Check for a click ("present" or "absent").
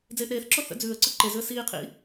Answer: present